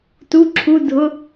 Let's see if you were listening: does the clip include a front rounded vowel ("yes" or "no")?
no